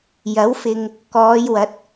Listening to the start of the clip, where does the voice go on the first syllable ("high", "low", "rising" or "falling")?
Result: rising